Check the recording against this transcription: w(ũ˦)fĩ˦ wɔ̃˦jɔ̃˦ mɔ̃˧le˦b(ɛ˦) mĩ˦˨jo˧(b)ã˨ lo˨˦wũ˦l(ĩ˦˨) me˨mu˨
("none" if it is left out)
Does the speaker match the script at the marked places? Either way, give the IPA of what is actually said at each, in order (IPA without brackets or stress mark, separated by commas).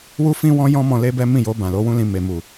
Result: u˦, ɛ˦, b, ĩ˧